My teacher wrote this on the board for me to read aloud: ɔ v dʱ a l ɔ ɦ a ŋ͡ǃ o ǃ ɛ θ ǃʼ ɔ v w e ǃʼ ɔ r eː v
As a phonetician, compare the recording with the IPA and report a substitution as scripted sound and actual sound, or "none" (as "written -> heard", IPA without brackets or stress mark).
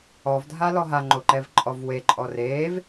θ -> v